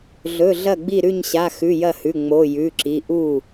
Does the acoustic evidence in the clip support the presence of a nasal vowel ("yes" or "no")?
no